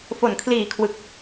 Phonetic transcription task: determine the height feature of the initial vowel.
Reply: mid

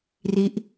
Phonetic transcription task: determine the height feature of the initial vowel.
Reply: high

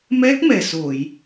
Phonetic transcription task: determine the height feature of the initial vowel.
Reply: mid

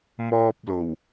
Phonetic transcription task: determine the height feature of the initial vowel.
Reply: mid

